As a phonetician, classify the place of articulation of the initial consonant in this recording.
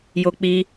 palatal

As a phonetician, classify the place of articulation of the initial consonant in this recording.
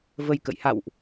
labial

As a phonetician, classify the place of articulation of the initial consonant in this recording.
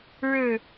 retroflex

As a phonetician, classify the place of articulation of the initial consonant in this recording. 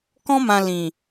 velar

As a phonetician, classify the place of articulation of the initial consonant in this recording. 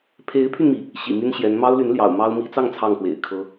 labial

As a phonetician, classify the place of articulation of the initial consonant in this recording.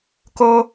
velar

